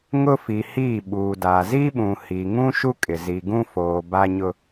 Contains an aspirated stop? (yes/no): no